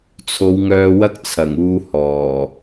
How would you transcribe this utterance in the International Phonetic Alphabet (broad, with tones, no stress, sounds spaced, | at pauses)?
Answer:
t͡sʰ o˨˧ w ŋ œː˧ w ɐ˥ k̚ t͡sʰ ɐ˨˩ ŋ uː˧ h ɔː˨˩